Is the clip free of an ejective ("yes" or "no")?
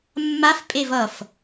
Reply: no